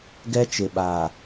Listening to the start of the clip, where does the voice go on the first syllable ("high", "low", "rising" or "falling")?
high